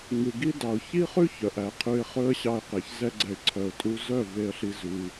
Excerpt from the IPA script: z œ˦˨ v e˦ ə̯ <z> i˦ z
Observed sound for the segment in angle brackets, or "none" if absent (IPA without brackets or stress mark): ɬ